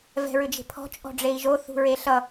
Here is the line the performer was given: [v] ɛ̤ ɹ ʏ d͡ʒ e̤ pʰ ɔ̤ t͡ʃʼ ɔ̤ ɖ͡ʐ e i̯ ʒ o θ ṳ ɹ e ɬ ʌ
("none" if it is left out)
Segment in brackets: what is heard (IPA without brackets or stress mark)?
v